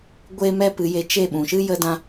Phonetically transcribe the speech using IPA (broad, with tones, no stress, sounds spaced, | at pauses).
ɡʷ eː˦ m ɛ˦ p ɨ˨˦ j e˧ t͡ʃ e˦˨ ɓ ũ˨ ʃ ɨ˦ j ə˦ d ã˦